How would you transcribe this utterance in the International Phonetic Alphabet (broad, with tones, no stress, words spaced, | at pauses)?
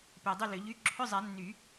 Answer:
pe˨dˤʏ˥˨lʏ˨˩˦ʎy˧˥˧ ǁʰʏ˧˥˧zˤɛ˨˩˦nːy˨˩˦